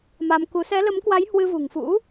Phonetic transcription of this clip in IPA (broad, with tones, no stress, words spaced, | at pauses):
ma˧mku˨˦ sɛ˨˦lə˨˦mkwa˨˦j hwɨ˧vṳ˨˩ŋfṵ˧˥